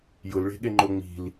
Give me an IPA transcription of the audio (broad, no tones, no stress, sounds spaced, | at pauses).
j ʊ l ɭ e̤ ɠ e ŋ͡ǃ o ŋ͡m i̤ l